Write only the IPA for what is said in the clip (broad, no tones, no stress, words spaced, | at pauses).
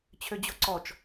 t͡ɕʰød͡ʑoǀɔt͡ʃ